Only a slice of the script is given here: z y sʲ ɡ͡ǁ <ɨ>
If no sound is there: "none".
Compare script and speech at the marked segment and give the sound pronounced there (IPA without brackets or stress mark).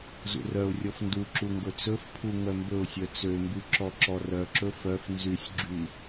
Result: y